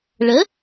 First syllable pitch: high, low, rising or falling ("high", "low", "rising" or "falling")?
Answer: rising